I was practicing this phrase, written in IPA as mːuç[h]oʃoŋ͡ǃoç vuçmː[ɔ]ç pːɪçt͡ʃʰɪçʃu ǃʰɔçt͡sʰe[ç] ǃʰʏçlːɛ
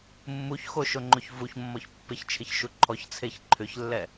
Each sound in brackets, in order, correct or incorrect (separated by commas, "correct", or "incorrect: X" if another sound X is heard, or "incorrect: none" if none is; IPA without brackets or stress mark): incorrect: x, correct, correct